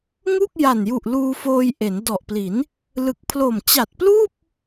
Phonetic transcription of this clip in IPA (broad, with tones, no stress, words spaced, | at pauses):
ŋu˥˩k̚ja˨˩nju˨˩ʔ luː˧foː˧jʔe˩˦n dɔ˨˩ʔpli˩˦n | lɯ˨˩k̚pʰlo˨˩m t͡ɕa˨˩t̚pluː˥˩p̚